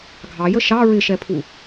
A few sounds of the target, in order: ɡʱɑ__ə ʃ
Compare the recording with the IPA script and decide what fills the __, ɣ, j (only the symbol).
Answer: j